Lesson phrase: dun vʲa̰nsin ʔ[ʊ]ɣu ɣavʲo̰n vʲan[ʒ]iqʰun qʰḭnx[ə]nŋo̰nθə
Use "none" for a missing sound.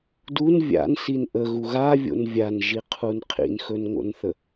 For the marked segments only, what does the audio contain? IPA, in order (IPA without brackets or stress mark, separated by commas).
ə, ʒ, ɵ